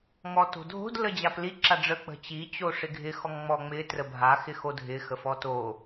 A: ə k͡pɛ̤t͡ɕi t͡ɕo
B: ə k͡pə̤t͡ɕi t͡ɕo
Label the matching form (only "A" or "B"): B